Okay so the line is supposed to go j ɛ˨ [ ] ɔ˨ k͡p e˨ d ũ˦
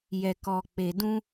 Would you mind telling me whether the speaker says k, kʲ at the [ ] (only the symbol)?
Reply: k